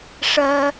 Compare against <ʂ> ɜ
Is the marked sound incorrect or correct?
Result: correct